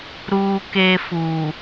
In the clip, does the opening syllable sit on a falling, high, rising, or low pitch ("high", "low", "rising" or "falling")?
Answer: high